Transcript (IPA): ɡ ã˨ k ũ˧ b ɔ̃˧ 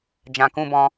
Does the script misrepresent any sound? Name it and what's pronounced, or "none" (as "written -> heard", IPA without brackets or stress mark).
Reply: ɡ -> d͡ʒ